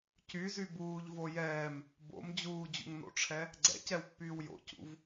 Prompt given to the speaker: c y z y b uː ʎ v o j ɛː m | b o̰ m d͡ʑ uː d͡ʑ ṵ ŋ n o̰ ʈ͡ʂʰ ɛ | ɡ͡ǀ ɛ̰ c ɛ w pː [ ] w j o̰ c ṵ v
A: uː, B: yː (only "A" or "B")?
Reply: B